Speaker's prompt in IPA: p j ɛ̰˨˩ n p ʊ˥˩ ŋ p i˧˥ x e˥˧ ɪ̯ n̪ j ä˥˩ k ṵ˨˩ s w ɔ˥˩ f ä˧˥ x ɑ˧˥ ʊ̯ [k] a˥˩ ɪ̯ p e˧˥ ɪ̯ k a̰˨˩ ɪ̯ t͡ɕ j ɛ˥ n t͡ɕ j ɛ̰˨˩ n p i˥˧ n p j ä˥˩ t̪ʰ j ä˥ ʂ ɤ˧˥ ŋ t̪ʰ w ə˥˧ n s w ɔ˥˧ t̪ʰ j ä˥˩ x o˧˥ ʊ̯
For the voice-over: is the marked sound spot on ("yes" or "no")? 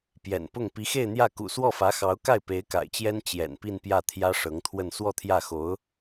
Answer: yes